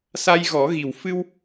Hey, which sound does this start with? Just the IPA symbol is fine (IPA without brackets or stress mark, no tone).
s